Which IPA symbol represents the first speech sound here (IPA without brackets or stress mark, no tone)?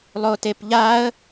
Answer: lˠ